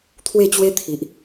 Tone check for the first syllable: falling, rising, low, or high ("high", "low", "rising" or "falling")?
falling